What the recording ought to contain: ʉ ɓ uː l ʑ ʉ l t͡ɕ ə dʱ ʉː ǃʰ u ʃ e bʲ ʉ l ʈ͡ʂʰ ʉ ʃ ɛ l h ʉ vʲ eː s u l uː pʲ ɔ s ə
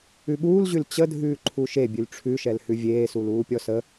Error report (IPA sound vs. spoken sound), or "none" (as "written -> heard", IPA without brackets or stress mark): none